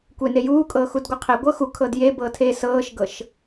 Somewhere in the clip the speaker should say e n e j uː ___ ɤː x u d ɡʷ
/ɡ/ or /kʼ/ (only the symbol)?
kʼ